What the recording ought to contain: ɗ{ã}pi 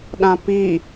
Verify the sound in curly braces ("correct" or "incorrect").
correct